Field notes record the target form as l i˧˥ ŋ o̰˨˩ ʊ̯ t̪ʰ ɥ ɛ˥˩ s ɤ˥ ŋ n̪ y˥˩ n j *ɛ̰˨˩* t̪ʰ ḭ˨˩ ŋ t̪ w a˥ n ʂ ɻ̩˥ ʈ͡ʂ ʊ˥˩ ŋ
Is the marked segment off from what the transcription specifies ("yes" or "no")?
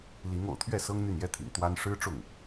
yes